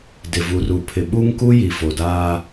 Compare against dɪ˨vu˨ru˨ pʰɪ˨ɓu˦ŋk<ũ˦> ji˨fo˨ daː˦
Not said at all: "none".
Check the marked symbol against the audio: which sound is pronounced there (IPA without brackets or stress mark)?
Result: u˦